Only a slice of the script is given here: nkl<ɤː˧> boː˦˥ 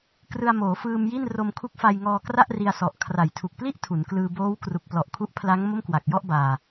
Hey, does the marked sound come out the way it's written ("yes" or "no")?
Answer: no